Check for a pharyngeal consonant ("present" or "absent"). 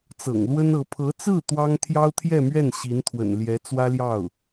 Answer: absent